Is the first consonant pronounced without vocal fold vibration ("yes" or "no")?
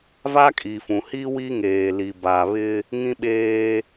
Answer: no